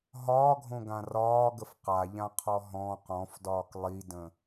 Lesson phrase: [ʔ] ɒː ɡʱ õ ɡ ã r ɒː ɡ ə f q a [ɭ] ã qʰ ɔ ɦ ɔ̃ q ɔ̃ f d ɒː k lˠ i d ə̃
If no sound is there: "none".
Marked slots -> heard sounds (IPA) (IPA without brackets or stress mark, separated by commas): ɦ, ʎ